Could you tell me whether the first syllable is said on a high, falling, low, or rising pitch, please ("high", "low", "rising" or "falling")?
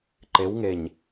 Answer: rising